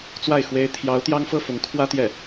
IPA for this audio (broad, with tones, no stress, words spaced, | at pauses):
t͡swa˥˩ɪ̯ xwe˥ɪ̯ t̪ʰjɑ˧˥ʊ̯ t̪jɑ˥ŋfɤ˥˩ fʊ˧˥ŋkʰwä˥ t̪jɛ˥˩